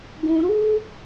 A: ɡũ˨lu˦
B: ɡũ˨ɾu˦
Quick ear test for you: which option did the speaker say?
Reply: B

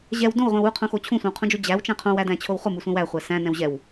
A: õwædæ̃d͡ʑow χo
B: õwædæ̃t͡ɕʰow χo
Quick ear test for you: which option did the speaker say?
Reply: B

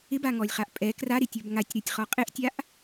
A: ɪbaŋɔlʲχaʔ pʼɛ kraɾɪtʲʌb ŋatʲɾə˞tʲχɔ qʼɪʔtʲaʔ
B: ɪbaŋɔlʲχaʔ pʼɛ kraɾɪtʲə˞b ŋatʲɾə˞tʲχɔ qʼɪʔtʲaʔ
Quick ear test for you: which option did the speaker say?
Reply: B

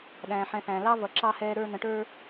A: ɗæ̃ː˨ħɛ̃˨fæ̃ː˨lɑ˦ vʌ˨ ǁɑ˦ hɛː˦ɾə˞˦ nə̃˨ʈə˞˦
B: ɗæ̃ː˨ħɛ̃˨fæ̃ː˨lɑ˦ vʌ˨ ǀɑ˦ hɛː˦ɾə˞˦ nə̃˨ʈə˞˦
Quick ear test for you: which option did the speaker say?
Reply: A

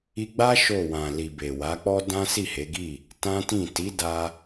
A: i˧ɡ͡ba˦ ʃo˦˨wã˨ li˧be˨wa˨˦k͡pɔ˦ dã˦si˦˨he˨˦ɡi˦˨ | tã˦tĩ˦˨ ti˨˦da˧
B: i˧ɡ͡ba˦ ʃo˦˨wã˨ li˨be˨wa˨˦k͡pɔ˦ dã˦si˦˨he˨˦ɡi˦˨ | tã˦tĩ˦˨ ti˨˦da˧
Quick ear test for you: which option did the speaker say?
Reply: B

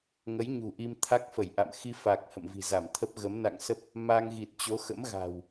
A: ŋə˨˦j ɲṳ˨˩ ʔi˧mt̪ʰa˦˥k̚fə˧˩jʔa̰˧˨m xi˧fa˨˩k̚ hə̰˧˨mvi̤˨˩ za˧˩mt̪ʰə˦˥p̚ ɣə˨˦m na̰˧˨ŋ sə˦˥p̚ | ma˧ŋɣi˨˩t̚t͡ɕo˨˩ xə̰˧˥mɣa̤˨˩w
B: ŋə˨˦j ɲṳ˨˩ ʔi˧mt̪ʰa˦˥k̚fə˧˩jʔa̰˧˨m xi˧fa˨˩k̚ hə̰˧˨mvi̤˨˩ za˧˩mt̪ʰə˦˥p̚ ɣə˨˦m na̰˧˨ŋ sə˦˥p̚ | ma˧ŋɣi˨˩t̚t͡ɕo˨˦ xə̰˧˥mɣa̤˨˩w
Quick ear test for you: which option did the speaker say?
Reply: B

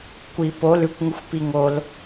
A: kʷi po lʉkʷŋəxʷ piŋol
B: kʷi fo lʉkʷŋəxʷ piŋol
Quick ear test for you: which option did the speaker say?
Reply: A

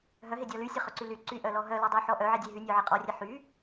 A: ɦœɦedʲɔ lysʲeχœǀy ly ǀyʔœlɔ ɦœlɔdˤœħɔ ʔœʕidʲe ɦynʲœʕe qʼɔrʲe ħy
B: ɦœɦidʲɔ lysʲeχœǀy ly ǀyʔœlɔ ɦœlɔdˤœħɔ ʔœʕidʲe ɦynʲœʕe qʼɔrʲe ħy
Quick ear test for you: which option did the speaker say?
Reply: A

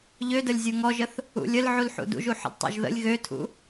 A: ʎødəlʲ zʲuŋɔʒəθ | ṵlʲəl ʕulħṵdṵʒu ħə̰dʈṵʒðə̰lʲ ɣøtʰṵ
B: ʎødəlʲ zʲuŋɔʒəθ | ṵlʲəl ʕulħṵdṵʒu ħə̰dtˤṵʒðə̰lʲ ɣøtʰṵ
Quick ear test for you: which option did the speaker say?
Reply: B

